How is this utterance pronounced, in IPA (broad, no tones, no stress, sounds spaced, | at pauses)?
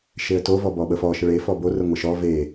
ʃ e ə̯ t o v ɔ b ɔ ɓ ə f ɔ ʃ ə ɭ e f ɔ b o r ə ŋʷ ə ʃ ɔ v e